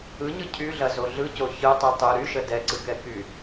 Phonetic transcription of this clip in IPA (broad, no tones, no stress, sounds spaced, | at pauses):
ɯ ɲ ɯ cʰ y ɮ ɐ z o ɮ ɯ c o ç ɯ tˤ y tˤ ɯ ɾ y ʃ ə d ɛ ǀ ɯ k ɛ k y